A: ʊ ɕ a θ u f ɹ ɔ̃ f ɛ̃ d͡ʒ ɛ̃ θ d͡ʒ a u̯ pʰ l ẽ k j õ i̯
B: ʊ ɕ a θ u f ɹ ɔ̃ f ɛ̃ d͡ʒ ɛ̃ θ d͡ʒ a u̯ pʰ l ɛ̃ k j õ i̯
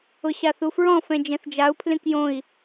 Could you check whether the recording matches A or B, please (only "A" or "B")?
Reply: A